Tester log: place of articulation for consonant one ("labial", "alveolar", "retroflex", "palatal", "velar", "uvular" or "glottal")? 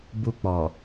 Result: labial